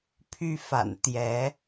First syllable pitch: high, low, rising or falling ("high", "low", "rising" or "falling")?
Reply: high